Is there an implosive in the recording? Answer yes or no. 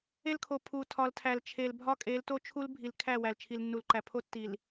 no